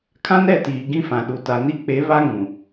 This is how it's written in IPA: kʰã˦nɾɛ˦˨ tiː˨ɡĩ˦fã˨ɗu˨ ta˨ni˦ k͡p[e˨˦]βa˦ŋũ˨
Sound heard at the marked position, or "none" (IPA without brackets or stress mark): e˨˦